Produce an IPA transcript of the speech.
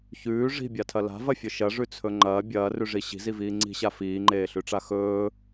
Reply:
ç ʉː ʐ i̤ bʲ a tʰ ɐ l a̤ v ɐ fʲ ɵ ʃ ɐ ʐ ʉ t͡sʰ ɵ ŋ͡ǃ ɐː bʲ ɐː r ʉ ʐ i ɕ i̤ z i v iː ŋ͡ǀ i̤ ɕ a f iː ŋ͡ǃ eː ɬ ʉ ʈ͡ʂ a x ɵː

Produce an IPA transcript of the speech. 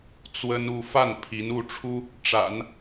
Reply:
t͡s w ə˥ n u˥˧ f a˥˩ n pʰ i˧˥ n u˥˩ ʈ͡ʂʰ u˥ | ʈ͡ʂ a̰˨˩˦ n

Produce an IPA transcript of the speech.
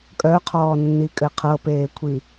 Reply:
kʼ œ qʰ ɔː nː i kʼ ɘ qʰ ɤ p eː kʷʰ i

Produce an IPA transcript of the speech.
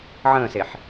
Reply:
ʕ ə̃ː s e ħ

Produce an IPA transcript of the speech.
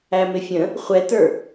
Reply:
æ m ɪ fʲ ə̃ | χʷ ɛ t ə˞

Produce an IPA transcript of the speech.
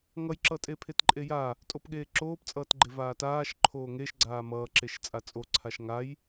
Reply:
ŋ ʌ j ǁ ʌ tʼ e pʰ e t ǃʼ e j a | tʼ o p ɠ eː ǁ oː p t͡sʼ ʌː t ɡ͡ǃ e v aː t aː ʃ ǃʰ oː ŋ e ʃ ɡ͡ǀ aː m ʌː ǁ e ʃ t͡sʼ a t͡sʼ o ǀʰ a ʃ ŋ a j

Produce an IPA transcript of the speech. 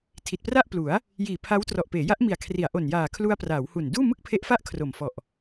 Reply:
tʰ i˨˩ t̚ p r a˥˩ ʔ p l u˩˦ a̯ | j iː˨˩ pʰ a˦˥ w t r ɔ˨˩ ʔ p eː˩˦ j a˦˥ ʔ m i˨˩ a̯ kʰ r i˩˦ a̯ ʔ o˨˩ n j aː˨˩ kʰ l u˧ a̯ p r aː˩˦ w h u˨˩ n d uː˥˩ m ɯ˥˩ k̚ pʰ e˦˥ ʔ f a˥˩ ʔ kʰ r o˨˩ m f ɔ˨˩ ʔ

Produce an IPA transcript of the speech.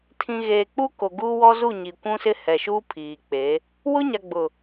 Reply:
tʰ ĩ˨ ɣ eː˨ k͡p u˦ k o˨ ɡ u˦ w ɔ˦ z u˦˨ ɲ i˨ kʷ ũ˦ s ɪ˦ h ɛ˨ ʃ uː˦ pʰ iː˨ k͡p e˨˦ | w ʊ˦ ɲ a˨ ɡ͡b ʊ˨

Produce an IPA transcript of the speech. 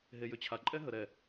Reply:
ɦ e j ʏ t͡ɕʰ a ǃʼ ɛ ɦ ə ɾ ɛ

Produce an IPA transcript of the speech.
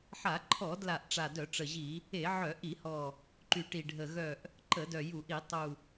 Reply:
ħ a˧˩˧ ǃʰ ɔ˧˩˧ d l a˨˩ ʔ ʈ͡ʂ a˨˩ d œ˧˩˧ ʈ͡ʂ ə˨˩ ʑ i˧˩˧ | e˧˩˧ ʕ œ˧˩˧ ʔ i˧˩˧ h ɔ˨˩ | ǃ y˨˩ ʈ i˨˩ ɖʱ ə˨˩ ɣ œ˨˩ ʔ | ǃ ə˧˩˧ d œ˨˩ j u˧˩˧ ʔ i˧˩˧ tˤ u˨˩

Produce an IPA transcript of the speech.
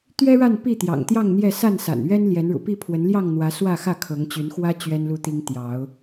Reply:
t̪ ɥ ɛ˦ ɻ a˥˨ n p i˥˨ t̪ j ɑ̰˨˩ ŋ t̪ j ɑ˥˨ ŋ n̪ j ɛ˥˨ s a˥˨ n s a̰˨˩ n ɥ ɛ˦ n l j ɛ˨˦ n ɻ ṵ˨˩ p i˥˨ pʰ w ə˨˦ n l j ɑ˥˨ ŋ n̪ w ä˨˦ s w ä˥˨ x ä˥˨ kʰ ɤ˨˦ ŋ t͡ɕ y˨˦ n x w ä˦ t͡ɕ ɥ ɛ˦ n l u˦ t̪ i˦ ŋ t̪ j ɑ˨˦ ʊ̯

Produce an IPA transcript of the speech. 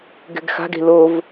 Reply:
ɡ ɛ̤ ɡ x a̤ ɡ e̤ l o v

